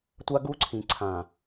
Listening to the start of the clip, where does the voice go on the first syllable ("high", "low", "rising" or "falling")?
high